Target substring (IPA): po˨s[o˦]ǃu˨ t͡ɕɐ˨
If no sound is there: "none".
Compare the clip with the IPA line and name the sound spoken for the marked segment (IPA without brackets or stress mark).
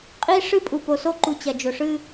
o˦